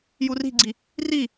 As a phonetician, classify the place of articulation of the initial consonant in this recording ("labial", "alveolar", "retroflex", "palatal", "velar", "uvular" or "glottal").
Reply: palatal